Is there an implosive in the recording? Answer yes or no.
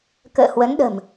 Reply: yes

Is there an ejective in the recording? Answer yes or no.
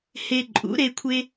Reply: yes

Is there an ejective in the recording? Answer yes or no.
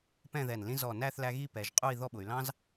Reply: yes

